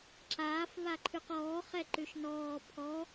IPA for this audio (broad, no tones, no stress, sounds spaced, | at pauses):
ǁ aː f β a ǃʰ ʉ q ɔː χ ɛ ǃ ʉ ʃ n ɔː pʰ ɔ